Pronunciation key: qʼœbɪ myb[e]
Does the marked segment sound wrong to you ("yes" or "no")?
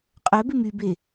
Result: no